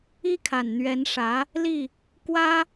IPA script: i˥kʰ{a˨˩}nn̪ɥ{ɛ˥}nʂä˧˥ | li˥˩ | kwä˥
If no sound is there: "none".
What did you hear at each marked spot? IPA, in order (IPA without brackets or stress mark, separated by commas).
a˨˩, ɛ˧˥